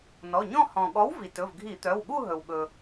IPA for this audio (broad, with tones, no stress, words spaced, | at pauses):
nɔ˩˧˩ɲɔ̃˥˧ hɔ̃˩ ɠɔ˨˥wvi˩ tɵ˩˧˩vɡʱi˧˩˧t̪œ˩˧˩wɠu˥˧ ɦɵ˩wɠɵ˩